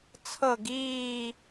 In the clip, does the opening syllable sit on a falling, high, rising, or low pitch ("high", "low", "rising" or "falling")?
falling